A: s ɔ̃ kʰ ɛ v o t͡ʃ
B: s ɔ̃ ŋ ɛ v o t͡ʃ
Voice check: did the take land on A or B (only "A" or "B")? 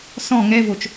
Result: B